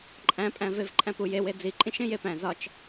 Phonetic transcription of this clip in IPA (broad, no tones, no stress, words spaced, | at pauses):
ǃʼæ̃pʼæ̃vev ǃʼæ̃pujewe d͡ziǃʼĩʃẽ jepæ̃ zɒt͡ʃ